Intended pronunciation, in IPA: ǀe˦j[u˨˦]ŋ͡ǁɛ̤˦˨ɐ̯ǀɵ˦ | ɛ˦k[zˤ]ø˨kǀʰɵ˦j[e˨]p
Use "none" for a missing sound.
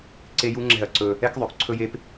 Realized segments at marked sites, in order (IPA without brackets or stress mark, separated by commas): u˦, ðˤ, e˦